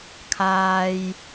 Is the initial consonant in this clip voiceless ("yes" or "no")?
yes